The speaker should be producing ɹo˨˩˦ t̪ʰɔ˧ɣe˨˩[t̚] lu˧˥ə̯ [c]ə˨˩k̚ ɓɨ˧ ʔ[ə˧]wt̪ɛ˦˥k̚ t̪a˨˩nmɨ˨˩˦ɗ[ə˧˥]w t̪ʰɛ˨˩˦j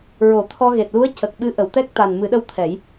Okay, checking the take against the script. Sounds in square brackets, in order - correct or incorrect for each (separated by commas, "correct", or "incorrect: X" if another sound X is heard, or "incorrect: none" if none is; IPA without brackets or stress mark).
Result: correct, correct, incorrect: ə˨˩˨, incorrect: ə˧